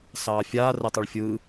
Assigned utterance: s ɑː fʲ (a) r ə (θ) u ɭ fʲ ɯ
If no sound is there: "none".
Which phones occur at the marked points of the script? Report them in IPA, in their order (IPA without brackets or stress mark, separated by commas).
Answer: aː, tˤ